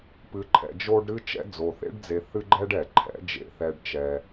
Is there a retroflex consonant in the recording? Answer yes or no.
yes